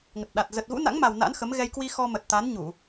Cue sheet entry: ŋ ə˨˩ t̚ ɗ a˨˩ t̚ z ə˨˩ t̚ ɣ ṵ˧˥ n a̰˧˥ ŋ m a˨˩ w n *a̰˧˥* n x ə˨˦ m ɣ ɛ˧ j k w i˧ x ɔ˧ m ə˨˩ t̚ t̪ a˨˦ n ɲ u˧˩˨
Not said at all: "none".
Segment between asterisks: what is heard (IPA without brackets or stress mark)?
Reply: a̰˧˥